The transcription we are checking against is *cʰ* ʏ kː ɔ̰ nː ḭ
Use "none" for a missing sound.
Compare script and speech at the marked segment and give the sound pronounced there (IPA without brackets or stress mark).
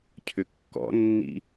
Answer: cʰ